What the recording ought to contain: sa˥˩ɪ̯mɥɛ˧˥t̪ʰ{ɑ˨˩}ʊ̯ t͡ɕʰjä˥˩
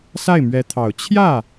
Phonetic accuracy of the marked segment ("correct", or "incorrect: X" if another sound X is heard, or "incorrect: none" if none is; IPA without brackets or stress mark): correct